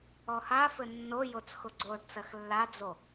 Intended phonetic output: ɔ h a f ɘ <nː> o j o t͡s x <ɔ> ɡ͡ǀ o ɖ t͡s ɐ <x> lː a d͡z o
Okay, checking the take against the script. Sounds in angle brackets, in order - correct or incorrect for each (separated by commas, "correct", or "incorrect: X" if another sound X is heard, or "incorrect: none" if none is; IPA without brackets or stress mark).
correct, incorrect: ʊ, correct